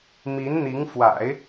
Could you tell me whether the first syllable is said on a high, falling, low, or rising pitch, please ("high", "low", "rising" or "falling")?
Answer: rising